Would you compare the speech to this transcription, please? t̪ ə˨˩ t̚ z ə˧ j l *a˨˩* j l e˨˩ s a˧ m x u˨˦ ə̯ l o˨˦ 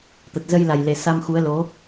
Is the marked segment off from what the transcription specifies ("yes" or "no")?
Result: no